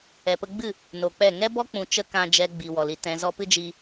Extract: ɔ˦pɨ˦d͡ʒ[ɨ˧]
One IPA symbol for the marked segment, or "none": i˧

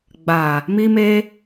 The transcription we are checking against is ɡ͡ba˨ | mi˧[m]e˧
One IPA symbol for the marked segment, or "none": m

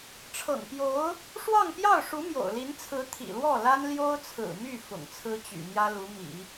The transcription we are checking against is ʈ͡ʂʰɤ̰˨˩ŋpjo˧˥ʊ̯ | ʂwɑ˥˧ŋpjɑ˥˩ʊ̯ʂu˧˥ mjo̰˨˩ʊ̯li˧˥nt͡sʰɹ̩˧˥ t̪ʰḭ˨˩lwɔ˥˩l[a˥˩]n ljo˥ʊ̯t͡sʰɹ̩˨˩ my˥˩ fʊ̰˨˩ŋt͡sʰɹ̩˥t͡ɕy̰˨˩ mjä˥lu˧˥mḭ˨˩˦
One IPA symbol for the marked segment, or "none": a˥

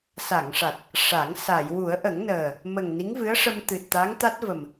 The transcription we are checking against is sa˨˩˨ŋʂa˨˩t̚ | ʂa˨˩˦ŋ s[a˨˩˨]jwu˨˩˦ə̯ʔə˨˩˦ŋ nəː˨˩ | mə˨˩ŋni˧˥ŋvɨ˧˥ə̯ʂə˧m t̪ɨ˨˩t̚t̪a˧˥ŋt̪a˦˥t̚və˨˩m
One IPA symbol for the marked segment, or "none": a˨˩˨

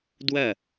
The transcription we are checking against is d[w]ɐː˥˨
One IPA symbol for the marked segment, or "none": w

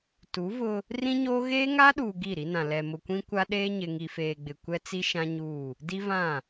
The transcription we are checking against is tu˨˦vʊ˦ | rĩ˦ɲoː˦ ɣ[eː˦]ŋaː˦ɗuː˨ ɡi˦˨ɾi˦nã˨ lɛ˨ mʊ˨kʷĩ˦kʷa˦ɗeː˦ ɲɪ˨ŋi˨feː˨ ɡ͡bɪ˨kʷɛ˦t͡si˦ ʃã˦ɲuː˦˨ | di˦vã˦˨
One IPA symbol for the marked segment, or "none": eː˦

